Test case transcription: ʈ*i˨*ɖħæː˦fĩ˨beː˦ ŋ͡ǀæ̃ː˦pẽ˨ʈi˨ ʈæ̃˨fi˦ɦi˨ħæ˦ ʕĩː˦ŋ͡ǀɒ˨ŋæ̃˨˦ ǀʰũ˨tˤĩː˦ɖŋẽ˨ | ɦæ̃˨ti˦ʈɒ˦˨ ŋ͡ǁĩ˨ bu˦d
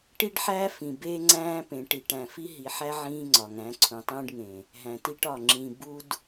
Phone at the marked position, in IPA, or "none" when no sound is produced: i˦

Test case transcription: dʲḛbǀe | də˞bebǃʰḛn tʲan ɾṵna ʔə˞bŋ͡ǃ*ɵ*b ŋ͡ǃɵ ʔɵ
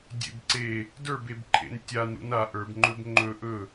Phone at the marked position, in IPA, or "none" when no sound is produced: ɵ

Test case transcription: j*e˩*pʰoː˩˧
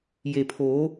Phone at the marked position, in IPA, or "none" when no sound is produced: e˩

